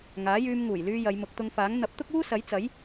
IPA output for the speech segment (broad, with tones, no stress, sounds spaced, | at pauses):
ŋ aː˨˥ j yː˧ m ŋ uː˨˩ j l yː˧ j ɐ˨˧ j m ʊ˨˥ k̚ t̪ ʊ˧ ŋ f aː˨˥ ŋ n̪ ɐ˨˥ p̚ t̪ ʊ˥ k̚ uː˥ s ɐ˨˥ j t͡s ɐ˨˥ j